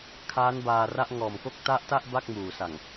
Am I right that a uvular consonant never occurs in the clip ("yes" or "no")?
yes